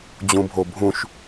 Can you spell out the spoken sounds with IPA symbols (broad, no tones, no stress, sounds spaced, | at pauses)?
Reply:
d͡ʑ ũ bʱ o bʱ ũ ʃ